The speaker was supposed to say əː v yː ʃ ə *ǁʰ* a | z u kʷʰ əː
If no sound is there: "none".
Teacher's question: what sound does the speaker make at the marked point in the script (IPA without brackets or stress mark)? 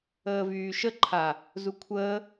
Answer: ǃʰ